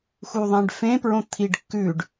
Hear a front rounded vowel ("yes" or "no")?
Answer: no